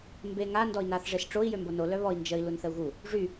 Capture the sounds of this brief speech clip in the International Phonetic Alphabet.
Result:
mbe ŋa ndɔi̯naθ ʐesʈ͡ʂoi̯ jømbono lœβɔi̯ nd͡ʒəi̯ lunθəu̯ɣu | ʐy

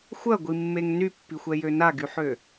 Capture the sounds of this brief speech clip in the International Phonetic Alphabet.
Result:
xʷɐɡʷimːeŋ nypːixʷɛjø naɡyħø

